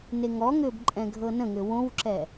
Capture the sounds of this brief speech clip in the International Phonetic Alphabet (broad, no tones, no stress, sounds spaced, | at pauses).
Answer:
n e ŋ ɔ ŋ ʏː b ǃʼ ɛ̃ ɡʱ ɤ n ə̃ ŋ ʏ w õ w ǁ ɛ